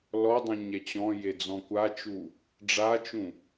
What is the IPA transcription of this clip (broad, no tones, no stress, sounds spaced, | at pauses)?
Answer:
l ɔ dˤ ũ ɲ ɛ t͡ɕ ɔ̃ j e d͡z ɔ̃ kʷ a t͡ʃ u | ɖ͡ʐ a t͡ʃ ũ